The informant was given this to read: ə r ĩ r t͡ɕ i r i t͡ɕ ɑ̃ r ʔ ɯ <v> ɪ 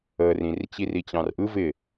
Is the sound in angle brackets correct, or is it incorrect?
correct